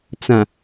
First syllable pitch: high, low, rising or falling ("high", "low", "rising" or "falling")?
low